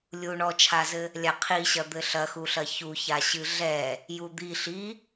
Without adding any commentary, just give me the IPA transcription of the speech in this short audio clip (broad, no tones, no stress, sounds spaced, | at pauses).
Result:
lʲ u ɳ ɔ t͡ʃʰ a z ɘ | lʲ a qʰ i ɕ ɐ d̪ ɘ ɬ ɐ x u ɬ ɐ ç u ç a ɕ ɨ ɮ ɛ | j u d̪ i ɬ i